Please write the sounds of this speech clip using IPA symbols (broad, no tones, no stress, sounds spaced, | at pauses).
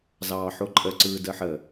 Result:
z ɑː ħ o ǃʼ ə ǀ ɯː d əː ħ ə